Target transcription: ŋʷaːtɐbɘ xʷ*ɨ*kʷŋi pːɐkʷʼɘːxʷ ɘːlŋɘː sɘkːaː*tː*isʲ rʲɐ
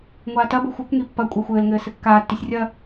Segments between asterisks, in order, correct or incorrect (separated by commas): correct, correct